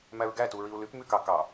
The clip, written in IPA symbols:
m æ ɹ ɡ æ t u ɹ i u̯ l y p m y k ɑ k ɑ

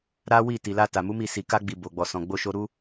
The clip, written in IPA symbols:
ɾ a˦ w i˦˨ t i˨ l a˧ t a˨ m u˨˦ m i˦˨ s i˨ k a˧ ɡ͡b i˨ b o˨ ɡ͡b ɔ˨ s ɔ̃˨ ɡ͡b o˧ ʃ o˧ ɾ u˦

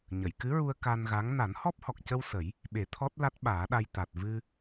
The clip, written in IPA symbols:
ɲ ə˨˩˨ j k ɨ˧˥ ɹ u˧ ə̯ k a˧ n ɣ a˧˥ ŋ n a˨˩˦ n h ɔ˦˥ p̚ h ɔ˨˩ k̚ c ə˧ w s ə˨˩˦ j | ɓ e˨˩˦ t̪ʰ ɔ˦˥ t̚ l a˦˥ t̚ ɓ aː˨˩˦ ɗ a˧ j t̪ a˨˩ t̚ v ɨ˧

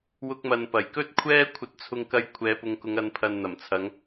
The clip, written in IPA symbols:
w ʊ˥ k̚ m ɐ˧ n p ɐ˨˩ j k ɵ˥ t̚ kʷʰ ɛː˥ kʷʰ ɐ˧ t̚ t͡sʰ ʊ˧ ŋ k ɐ˧ j kʷʰ ɛː˨˧ p ʊ˨˧ ŋ k ʊ˨˧ ŋ ɐ˨˧ n pʰ ɐ˨ n n̪ ɐ˨˩ m t͡sʰ ɐ˨˧ ŋ

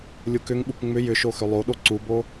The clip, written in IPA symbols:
lʲ u k ʏ ŋ ɓ u k ŋ͡m ʏ j ʏ ʃ o x ʏ lˠ o ɗ o ǀ u b o

